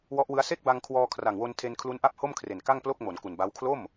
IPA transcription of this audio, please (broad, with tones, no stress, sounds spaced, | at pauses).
w ɔ˦˥ ʔ w ɯ˦˥ a̯ s e˥˩ k̚ b a˧ ŋ kʰ w ɔː˧ kʰ r a˨˩ ŋ w o˧ n tʰ e˧ n kʰ l u˦˥ n ʔ a˥˩ p̚ h o˥˩ m kʰ r e˨˩ n k a˥˩ ŋ p l o˥˩ k̚ m o˩˦ n k u˨˩ n b a˦˥ w kʰ l o˥˩ m